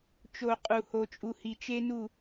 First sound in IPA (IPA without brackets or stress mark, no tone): t͡ʃ